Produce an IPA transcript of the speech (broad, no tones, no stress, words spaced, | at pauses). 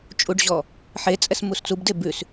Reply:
t͡ʃʼuɖʑɔ | ħet͡sʼɛs must͡subde bʉs